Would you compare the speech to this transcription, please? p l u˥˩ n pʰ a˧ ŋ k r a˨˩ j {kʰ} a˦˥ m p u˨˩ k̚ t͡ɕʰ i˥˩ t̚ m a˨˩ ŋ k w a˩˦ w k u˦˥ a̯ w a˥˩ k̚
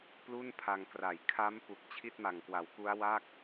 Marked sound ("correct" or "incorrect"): correct